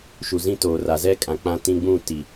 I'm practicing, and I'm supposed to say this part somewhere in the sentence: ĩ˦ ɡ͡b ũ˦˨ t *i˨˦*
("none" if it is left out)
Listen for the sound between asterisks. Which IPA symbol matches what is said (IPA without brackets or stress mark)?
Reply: i˨